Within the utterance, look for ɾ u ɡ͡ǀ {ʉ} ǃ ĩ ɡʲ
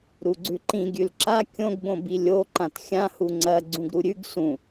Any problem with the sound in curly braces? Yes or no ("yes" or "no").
no